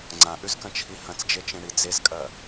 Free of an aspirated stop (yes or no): no